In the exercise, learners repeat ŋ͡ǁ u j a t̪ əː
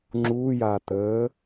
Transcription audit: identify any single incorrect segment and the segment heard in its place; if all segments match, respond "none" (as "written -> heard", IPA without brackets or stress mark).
none